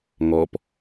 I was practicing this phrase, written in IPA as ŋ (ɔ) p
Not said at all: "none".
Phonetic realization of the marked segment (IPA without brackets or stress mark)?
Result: ɔ